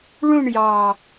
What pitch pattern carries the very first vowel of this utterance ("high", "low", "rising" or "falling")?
falling